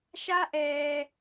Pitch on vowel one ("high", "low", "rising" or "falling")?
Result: high